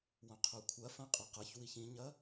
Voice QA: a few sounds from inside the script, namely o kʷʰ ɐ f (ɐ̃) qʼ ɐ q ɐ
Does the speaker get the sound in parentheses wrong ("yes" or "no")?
no